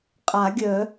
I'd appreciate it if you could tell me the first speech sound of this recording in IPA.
qʼ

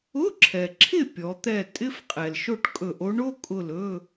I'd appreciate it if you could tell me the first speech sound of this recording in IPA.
ʊ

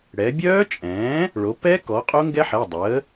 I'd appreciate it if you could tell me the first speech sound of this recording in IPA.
ɽ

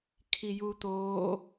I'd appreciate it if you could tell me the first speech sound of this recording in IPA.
kʰ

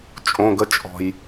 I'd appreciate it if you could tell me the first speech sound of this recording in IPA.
t͡ʃʼ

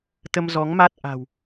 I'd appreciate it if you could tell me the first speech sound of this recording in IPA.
t̪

